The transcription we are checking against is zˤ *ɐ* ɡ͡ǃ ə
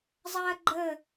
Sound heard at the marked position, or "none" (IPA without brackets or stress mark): ɐ